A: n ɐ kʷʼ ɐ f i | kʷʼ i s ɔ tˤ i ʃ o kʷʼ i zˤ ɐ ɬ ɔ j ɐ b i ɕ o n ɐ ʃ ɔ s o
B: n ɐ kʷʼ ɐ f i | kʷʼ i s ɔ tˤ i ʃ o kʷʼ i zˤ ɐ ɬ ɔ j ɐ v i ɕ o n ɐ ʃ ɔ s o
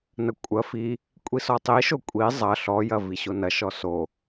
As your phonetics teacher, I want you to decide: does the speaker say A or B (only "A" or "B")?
B